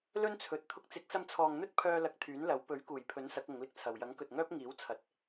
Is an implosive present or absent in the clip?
absent